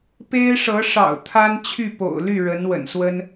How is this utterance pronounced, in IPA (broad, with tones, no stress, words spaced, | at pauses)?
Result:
pe˥ɪ̯ʂɤ˧˥ ʂɑ̰˨˩ʊ̯ t̪ʰa˥nt͡ɕʰy˥˩po̰˨˩ʊ̯ly˥˩ ɻə˧˥nwə̰˨˩nswə˥n